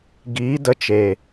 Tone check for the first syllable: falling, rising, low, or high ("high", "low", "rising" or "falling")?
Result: rising